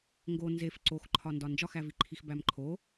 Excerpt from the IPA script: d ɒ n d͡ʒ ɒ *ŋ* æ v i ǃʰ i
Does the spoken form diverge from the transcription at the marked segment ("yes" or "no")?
yes